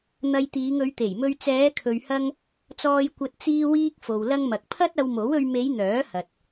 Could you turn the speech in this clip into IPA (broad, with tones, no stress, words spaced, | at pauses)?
n̪ɐ˧jt̪iː˨˧ŋ ɵ˨˧ɥt̪e˨˩jmɵ˧ɥ t͡sɛː˨˧kʰɵ˨ɥhɐ˧ŋ | t͡sɔː˧jkʷɐ˧t̚ t͡siː˧wiː˧k̚fo˨w lɐ˧ŋmɐ˨k̚pʰɐ˥t̚ ɐ˧wmo˨˥wɵ˧ɥ me˨˧j n̪œː˨˥hɐ˨t̚